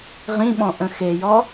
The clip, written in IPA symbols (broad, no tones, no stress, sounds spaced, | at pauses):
ʁ ĩ ɓ ɔ̃ ʔ ə̃ x e j ɔ